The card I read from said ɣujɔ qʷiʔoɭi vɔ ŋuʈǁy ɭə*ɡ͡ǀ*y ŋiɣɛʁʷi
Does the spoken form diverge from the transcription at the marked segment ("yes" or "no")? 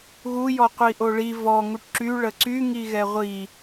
yes